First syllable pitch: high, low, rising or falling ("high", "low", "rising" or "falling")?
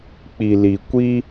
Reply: low